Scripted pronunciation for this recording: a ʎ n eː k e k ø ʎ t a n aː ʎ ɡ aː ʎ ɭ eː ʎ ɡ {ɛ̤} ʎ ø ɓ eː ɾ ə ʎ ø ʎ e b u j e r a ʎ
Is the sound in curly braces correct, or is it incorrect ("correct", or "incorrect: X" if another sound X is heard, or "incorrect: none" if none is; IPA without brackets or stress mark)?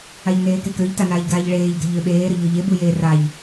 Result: correct